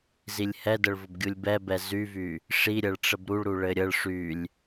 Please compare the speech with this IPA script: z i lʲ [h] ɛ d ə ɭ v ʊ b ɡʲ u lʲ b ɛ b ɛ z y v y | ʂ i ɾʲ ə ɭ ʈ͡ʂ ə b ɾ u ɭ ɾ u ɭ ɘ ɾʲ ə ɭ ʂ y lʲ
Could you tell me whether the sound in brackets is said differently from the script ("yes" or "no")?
no